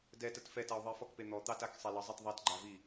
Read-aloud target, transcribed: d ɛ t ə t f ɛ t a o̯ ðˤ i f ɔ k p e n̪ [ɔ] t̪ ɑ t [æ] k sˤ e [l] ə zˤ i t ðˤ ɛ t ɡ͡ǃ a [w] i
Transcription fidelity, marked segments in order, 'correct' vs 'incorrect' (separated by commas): correct, incorrect, correct, incorrect